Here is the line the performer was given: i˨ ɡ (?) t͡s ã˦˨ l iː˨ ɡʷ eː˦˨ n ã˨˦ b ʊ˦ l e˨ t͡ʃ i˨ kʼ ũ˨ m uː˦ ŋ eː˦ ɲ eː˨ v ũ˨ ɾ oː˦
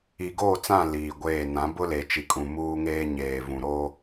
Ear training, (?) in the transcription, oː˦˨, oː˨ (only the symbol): oː˦˨